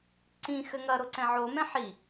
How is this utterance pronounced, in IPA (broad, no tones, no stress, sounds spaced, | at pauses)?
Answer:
ǀ ĩ x ɘ ŋ ɐ ɾ o ǀ ɛ̃ ʕ o m ɛ̃ ħ i